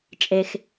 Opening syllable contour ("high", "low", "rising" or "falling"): low